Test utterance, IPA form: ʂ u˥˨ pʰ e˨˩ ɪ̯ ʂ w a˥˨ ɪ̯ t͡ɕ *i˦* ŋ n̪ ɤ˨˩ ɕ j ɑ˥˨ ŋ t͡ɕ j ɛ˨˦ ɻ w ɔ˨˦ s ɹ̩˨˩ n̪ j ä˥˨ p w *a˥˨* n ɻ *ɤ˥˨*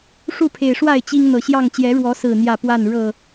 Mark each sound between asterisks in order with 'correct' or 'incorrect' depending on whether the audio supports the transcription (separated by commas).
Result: correct, correct, correct